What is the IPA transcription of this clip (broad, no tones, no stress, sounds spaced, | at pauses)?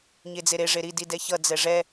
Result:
ɲ e d͡z e ɾ e ʐ e ɾ i d i d ɛ ç ʌ d͡z ɛ ʐ ɛ